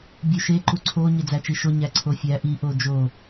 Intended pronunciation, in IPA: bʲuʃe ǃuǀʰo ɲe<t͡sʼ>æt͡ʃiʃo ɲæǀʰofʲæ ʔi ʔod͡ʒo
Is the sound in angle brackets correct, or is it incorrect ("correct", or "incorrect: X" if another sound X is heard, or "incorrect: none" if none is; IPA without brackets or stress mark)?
incorrect: d͡z